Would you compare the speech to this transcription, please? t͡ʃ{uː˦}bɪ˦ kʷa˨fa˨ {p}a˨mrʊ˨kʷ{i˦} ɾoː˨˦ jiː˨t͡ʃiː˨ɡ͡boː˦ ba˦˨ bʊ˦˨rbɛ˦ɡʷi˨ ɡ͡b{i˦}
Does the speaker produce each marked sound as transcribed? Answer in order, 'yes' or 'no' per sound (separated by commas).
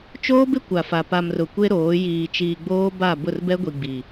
no, yes, no, no